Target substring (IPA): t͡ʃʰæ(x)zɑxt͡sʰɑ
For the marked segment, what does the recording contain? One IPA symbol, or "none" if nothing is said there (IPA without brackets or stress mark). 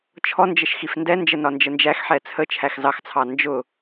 x